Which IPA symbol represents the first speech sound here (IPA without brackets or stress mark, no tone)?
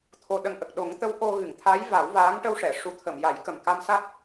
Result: t̪ʰ